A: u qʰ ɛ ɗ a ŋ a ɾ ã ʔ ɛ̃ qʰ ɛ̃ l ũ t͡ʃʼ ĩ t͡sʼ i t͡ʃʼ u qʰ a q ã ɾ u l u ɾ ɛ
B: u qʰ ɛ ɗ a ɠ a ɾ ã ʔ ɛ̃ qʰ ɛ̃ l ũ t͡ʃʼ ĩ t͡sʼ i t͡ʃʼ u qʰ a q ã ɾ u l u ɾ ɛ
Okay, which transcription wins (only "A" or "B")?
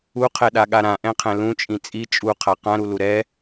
B